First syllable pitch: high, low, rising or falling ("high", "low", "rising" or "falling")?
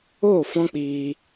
falling